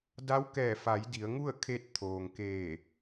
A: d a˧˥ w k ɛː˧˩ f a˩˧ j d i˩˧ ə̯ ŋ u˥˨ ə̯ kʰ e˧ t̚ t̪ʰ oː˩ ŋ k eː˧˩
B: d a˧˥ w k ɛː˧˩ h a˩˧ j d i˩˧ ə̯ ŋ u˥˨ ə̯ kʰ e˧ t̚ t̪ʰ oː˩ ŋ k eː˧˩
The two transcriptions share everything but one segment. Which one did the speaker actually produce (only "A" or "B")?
A